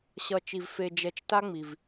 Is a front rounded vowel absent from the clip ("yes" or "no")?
yes